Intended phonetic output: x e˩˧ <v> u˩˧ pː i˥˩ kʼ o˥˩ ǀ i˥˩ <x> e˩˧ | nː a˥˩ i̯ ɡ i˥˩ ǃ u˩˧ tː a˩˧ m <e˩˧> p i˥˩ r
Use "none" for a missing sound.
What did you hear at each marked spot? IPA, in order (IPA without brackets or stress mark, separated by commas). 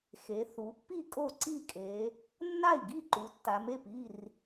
θ, kʼ, e˥˩